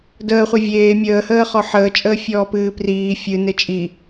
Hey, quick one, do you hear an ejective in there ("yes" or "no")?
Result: yes